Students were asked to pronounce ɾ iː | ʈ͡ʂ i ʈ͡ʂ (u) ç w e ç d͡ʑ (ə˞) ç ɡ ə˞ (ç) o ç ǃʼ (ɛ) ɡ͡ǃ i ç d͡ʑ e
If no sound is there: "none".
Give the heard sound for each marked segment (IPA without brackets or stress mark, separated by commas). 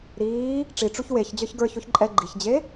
u, ə˞, ç, ɛ